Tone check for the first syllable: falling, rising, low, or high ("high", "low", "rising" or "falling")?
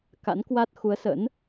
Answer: rising